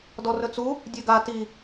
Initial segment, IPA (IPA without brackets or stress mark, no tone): d